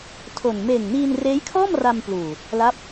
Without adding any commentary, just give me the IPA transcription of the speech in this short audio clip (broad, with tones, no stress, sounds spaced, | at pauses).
tʰ o˨˩ n m eː˨˩ ŋ n iː˧ n r eː˦˥ j kʰ ɔː˥˩ m r a˧ m p l uː˨˩ | l a˦˥ p̚